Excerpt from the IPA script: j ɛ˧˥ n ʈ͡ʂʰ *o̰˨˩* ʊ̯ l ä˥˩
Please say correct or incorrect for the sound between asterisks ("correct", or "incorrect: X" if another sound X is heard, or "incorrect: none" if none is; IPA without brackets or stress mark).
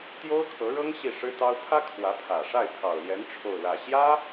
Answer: incorrect: o˥˧